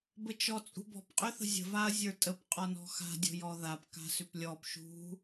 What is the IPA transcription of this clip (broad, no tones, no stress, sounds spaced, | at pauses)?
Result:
b ə t͡ʃ ɔ t͡sʼ ṳ b ɔ̤ p qʼ ʏ θ ə̤ zʲ ə̤ v a ɐ̯ zʲ ə˞ tʼ ə p qʼ ɔ n ɔ̤ x a̤ dʲ ɔ̤ j ɔ ð a p k a̤ s ʏ p lʲ ɔ p ʃ ṳ